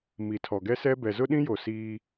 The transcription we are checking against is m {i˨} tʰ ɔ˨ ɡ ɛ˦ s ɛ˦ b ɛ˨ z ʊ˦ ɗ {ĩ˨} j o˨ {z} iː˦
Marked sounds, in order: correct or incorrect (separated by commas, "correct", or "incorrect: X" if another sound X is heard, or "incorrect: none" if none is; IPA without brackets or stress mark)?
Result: correct, incorrect: ĩ˦, incorrect: s